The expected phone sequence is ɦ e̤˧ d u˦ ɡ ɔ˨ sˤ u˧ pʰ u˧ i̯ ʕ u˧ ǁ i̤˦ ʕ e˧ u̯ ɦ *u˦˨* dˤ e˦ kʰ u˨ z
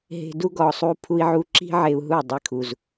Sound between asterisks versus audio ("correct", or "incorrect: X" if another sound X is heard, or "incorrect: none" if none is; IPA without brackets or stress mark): correct